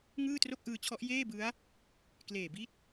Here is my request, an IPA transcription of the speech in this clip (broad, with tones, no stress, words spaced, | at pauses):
ŋɯː˥˩tro˥˩k̚ʔɯː˧t͡ɕʰɔ˦˥ʔ jeː˥˩bɯ˦˥a̯ | kleː˨˩bi˥˩t̚